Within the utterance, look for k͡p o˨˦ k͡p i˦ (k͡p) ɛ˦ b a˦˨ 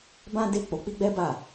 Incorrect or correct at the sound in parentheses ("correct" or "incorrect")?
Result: incorrect